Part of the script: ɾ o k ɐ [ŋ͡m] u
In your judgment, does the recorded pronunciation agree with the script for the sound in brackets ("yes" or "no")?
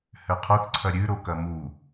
no